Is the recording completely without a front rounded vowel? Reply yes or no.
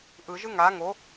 yes